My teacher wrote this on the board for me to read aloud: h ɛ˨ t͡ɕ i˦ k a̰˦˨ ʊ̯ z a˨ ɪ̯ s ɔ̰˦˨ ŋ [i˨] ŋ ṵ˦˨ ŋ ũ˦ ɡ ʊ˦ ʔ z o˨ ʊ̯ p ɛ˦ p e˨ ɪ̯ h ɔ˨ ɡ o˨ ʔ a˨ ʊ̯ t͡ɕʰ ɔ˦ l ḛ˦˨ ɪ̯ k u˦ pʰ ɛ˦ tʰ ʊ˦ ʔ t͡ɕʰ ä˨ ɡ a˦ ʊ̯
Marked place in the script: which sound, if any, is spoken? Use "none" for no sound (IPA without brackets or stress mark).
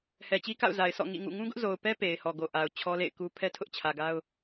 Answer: ḭ˦˨